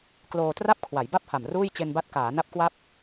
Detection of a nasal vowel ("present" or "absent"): absent